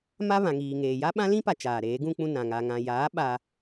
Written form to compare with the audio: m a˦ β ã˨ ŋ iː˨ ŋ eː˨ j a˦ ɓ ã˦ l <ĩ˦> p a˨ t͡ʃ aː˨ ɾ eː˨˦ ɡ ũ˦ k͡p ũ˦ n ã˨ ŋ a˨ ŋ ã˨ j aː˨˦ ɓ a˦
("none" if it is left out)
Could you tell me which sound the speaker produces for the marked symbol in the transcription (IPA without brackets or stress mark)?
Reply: ĩ˦